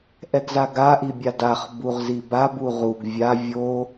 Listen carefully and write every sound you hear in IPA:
ʔɛɡzaɡa ʔibʲadaχ buʁzibab uʁuɡ vʲa vʲo

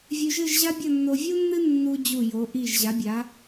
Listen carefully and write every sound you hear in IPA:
vʲʉ˧ʒɨ˥˧ʒʑa˥bʲɐ˥˧ nːo˧vʲu˥nːɨ˥ nːu˧d͡ʑu˧˩jo˩˧ʔi˧˩ʒ ʑa˩˧bʲa˩˧

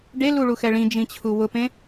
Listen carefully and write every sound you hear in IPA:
ɖeluɭuxɛ ɭĩd͡ʒĩt͡ɕʰu wʊpẽ

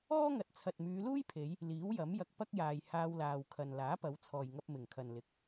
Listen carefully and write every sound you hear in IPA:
ɔː˥ŋɐ˨t̚t͡sʰɐ˨t̚ myː˨˧luː˥jpʰe˨˧j | liː˨˥wjɐ˨˥m jɐ˧k̚ pɐ˥k̚jaː˨j haː˧wlaː˨wkʰɐ˨n laː˨˥pɐ˨˧wt͡sʰɔː˨jŋɐ˧p̚ mɪ˨˩ŋkʰɐ˨nlɪ˨˥k̚

